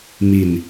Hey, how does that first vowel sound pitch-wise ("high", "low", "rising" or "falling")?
low